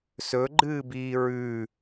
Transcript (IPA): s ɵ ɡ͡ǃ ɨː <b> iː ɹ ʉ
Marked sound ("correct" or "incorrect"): correct